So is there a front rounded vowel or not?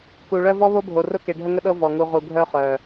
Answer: yes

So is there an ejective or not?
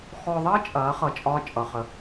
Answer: yes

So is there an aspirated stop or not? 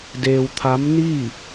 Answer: yes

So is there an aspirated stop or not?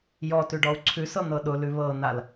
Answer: yes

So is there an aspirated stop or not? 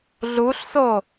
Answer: no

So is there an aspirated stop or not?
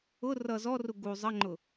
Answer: no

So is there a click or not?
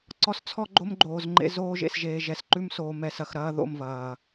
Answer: yes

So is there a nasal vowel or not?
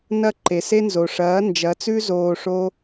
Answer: no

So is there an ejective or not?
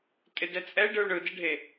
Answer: yes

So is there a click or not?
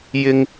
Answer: no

